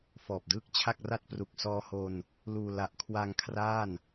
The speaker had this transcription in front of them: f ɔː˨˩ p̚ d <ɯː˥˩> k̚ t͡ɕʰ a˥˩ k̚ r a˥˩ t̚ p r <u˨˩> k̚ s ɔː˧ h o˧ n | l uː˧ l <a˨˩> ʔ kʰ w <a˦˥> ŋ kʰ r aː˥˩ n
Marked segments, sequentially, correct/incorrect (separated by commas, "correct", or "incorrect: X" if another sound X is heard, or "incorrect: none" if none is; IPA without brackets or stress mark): correct, correct, correct, incorrect: a˧